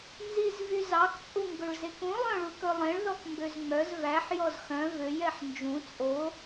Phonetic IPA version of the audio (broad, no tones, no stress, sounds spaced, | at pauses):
n z i z v y z ɑ k t͡sʼ u ŋ ɡ ɵ ɭ z e k ũ lˠ œ̃ ɭ u k ɵ lˠ ẽ ɭ ð ɔ k m b ø z ŋ͡m œ z v æ ħ j ɔ z x œ̃ v ø j ɛ ħ n d͡ʒ ũ t͡sʼ o